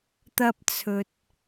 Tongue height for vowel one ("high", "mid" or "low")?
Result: low